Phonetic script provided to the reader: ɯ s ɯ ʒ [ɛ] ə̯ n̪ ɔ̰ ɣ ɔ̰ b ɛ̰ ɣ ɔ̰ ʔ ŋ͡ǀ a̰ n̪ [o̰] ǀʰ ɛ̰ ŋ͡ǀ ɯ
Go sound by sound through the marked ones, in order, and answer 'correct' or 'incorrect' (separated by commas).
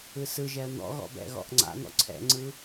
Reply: correct, incorrect